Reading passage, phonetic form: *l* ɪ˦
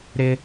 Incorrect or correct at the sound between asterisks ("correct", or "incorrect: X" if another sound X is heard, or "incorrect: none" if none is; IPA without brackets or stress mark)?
incorrect: ɾ